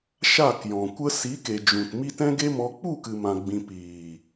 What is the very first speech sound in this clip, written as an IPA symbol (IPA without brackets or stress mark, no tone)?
ʃ